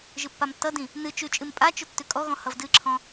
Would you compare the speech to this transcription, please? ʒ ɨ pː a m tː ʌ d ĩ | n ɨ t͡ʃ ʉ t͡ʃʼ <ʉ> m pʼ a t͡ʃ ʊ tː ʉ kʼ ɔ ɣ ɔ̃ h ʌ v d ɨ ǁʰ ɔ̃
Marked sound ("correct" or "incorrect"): incorrect